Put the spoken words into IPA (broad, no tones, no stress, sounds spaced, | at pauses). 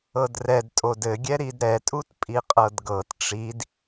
ɤ d r ɛ d tʼ o d ɘ ɡʲ ɛ ɾ i d ɾ ɛ tʼ u t pʼ i qʼ ɤ d ɡ ɤ t ʈ͡ʂ i d